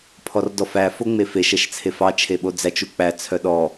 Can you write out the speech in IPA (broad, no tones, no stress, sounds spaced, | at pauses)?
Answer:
pʰ ɔ r d ɔ f æ f o ŋ͡m e f e ʃ ɛ ʃ t͡sʰ e f ɑ t͡ʃʰ e ɓ o d͡z æ t͡ʃ u k͡p æ t͡sʰ œ ɗ ɔ